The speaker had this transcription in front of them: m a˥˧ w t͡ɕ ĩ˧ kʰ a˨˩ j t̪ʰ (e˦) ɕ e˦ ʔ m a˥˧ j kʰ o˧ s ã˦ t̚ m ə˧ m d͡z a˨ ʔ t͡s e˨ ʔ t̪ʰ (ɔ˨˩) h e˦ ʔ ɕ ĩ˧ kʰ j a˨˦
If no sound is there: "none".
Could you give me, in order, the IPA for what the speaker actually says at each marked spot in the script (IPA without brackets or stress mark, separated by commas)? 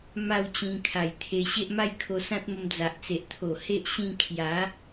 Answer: e˧, o˨˩